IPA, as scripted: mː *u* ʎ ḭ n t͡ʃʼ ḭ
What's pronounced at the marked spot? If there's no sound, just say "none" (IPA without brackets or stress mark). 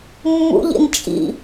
ṵ